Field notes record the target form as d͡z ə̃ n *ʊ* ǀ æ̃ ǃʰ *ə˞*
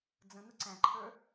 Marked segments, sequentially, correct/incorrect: incorrect: ə, correct

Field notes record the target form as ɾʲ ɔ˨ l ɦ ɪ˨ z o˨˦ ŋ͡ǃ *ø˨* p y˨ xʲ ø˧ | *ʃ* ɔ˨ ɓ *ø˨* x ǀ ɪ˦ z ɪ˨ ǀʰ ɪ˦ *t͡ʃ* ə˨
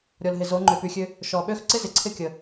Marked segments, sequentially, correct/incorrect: correct, correct, incorrect: ø˦, incorrect: kʲ

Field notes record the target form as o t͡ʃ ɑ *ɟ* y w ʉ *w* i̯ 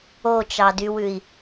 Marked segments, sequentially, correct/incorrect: incorrect: d, incorrect: none

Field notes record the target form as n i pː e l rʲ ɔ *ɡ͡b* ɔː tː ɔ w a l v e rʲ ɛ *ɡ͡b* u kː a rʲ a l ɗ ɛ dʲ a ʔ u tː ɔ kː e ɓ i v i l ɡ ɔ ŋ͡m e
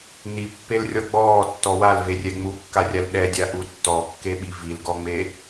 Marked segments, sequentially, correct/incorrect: correct, incorrect: ŋ͡m

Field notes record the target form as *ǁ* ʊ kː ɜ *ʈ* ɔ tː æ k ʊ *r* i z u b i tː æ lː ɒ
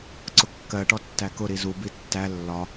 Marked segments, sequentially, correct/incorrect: incorrect: ǀ, correct, incorrect: ɾ

